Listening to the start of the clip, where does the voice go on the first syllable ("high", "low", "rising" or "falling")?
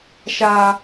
high